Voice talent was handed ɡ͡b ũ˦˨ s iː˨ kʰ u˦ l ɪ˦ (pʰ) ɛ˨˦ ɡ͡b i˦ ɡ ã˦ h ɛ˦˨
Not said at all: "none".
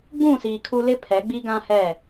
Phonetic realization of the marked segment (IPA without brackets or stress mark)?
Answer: pʰ